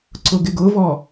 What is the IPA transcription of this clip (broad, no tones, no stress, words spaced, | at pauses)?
ǀʊɡɪɡʊvɔ